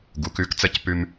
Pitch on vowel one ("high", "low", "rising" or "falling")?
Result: rising